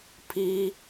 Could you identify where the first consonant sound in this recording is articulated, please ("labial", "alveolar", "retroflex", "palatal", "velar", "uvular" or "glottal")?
labial